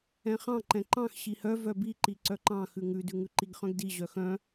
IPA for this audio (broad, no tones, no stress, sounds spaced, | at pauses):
ɛ̃ χ ɑ̃ ǃ ɛ̃ ǃ ɑ̃ x ɕ i h œ v œ b i ǃ i ǀ œ ǃ ɑ̃ x ʉ ŋ ʉ d ʉ ŋ ʉ ǃ i ɡ χ œ̃ ɡ d i ʑ œ x œ̃